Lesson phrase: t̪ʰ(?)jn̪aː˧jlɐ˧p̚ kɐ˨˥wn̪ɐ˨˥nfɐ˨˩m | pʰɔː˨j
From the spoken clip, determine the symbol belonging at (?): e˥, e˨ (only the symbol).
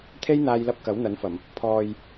e˥